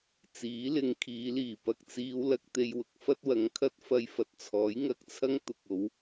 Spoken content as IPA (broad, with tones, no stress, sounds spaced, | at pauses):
t͡s iː˨˥ l ɪ˨˧ ŋ kʰ iː˨˧ l iː˨˩ p ɐ˨ k̚ t͡s iː˨˧ w l ɐ˧ k̚ t̪ e˧ j w ʊ˧ k̚ f ɐ˥ t̚ w ɐ˨˧ ŋ kʰ ɐ˥ t̚ f ɐ˧ j f ɐ˨ t̚ t͡sʰ ɔː˨˥ j ŋ ɐ˧ k̚ t͡sʰ ɐ˥ ŋ t̪ ʊ˨ k̚ o˨˧ w